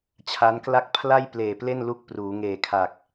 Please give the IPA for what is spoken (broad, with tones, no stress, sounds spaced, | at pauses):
t͡ɕʰ a˦˥ n k l a˥˩ k̚ pʰ l a˥˩ j p l eː˨˩ p l e˥˩ n l u˦˥ k̚ p r uː˩˦ ŋ eː˨˩ kʰ a˨˩ k̚